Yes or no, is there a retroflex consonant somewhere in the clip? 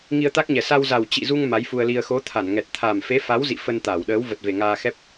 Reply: no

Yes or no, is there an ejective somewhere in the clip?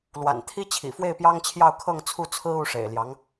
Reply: no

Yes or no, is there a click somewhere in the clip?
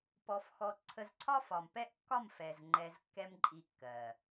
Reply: yes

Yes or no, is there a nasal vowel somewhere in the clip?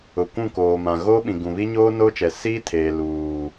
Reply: yes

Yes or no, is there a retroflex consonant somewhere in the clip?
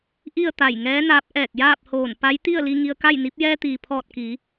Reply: no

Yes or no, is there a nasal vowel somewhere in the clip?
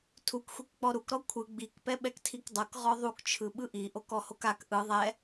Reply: no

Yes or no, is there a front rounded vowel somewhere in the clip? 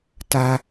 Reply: no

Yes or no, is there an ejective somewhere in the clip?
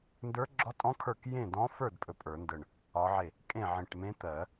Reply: yes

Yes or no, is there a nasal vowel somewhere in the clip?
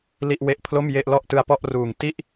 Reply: no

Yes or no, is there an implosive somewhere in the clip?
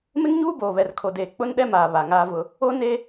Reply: yes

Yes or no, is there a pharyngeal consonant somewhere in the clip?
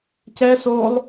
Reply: no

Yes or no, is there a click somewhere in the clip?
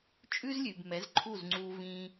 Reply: yes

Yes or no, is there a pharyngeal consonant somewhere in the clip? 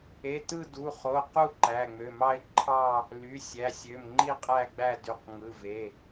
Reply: no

